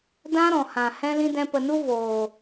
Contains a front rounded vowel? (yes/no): no